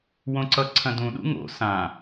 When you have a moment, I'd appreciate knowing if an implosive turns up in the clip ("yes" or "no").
yes